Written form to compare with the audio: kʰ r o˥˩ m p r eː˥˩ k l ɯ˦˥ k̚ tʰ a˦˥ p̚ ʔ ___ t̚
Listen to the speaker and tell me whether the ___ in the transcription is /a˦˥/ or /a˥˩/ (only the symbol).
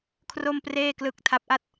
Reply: a˥˩